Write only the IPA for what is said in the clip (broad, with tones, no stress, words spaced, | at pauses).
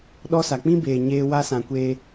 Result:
ɗɔ˦sa˨ k͡pĩ˦beː˨ ɲeː˦wa˦sã˨ kʷeː˦